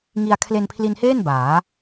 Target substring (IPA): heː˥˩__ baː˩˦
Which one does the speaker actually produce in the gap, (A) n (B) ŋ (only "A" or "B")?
A